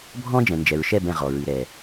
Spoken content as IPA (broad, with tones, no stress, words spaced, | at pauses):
bʱɔ̃˦d͡ʒɛ̃˨nd͡ʒɛ˨ɹʃɛ˦˨b ɛ̃˧ʁɔ˨ɹɨ˨ ɾɛ˨